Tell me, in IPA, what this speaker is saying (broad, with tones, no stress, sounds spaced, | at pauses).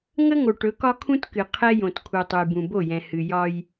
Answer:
ŋ ə˦ ŋ o˨ ʈ ɵ˨˦ k ɒ˦ kʰ ũ˦ t k ɨ˨ qʰ ɛ˦ j õ˨ t kʰ u˨ tˤ u˨ j b ũ˨ b o˦˨ j ɛ̃˨ h ɨ˨ j ɒ˦ j